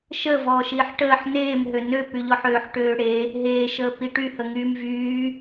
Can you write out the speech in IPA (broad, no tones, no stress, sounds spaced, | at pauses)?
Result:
ʃ ə v ɔː ʃ iː ħ ʈ əː ħ n eː m ɦ ø n ø p y ʎ ɔ ħ øː ħ ʈ øː ɽ e | ɦ eː ʃ əː p i ʈ y h ə ŋ yː m v yː